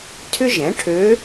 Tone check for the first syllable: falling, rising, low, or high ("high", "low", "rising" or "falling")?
high